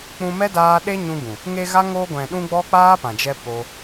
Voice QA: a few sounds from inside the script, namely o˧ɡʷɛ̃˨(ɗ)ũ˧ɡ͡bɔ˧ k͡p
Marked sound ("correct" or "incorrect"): correct